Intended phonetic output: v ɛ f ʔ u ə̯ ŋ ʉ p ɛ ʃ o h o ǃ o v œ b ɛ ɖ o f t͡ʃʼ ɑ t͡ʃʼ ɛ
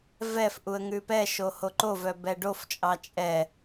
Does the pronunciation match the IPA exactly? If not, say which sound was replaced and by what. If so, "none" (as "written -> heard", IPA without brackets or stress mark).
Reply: none